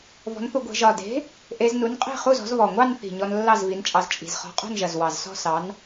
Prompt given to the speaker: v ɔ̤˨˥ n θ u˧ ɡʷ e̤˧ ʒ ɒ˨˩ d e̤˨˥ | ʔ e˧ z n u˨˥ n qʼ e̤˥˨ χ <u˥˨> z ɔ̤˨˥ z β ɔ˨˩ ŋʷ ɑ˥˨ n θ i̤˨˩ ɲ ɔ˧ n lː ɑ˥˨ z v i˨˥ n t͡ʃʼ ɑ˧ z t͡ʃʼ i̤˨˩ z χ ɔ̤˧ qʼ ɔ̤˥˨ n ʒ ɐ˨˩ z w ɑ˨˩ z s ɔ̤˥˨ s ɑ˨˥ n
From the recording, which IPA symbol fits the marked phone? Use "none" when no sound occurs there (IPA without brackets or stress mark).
u˥˨